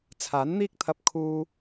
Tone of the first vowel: rising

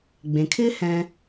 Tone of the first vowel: low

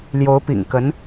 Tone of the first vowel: rising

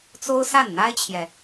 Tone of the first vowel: high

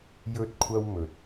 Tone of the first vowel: high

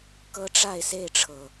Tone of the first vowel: high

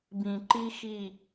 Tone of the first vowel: low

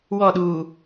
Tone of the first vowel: falling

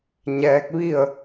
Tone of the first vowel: rising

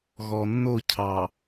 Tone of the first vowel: low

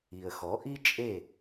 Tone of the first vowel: low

